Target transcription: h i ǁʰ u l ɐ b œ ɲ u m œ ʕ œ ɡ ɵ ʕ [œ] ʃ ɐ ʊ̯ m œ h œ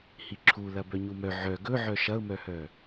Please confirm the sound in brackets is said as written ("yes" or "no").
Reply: yes